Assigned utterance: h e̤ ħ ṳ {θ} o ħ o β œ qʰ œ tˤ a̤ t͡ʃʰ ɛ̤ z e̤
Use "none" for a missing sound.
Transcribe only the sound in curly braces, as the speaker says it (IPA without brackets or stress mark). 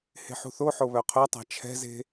θ